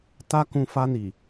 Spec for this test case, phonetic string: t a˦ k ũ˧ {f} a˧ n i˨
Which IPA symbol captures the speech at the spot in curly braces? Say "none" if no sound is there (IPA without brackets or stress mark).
f